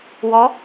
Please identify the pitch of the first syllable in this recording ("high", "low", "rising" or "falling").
rising